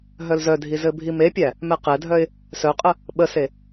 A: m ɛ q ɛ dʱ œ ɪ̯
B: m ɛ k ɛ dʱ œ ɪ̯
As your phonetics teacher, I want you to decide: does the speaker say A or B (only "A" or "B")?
A